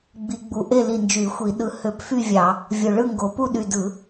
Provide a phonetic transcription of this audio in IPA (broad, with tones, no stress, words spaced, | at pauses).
ɡ͡bi˧˩˧ɡ͡bu˧˩ ʔe˥˨ li˧˩nd͡ʒy˧˩˧ xʷi˧˩˧ɗɯ˧˩˧ hø˧˩˧pfy˥˨vʲɑ˧˩˧ | vʲo˧˩ɭɯ˥˨ŋɡo˨˦ pu˥˨ɗy˧˩dɯ˧˩˧